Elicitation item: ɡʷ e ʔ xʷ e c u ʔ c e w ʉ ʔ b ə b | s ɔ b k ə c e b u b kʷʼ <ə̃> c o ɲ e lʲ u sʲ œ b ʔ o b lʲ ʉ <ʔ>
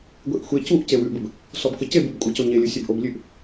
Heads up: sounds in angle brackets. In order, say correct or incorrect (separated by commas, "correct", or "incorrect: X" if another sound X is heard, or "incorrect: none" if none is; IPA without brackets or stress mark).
incorrect: ə, correct